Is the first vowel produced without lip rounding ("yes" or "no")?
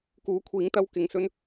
no